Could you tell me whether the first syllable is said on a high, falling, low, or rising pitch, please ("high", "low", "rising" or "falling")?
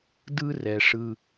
high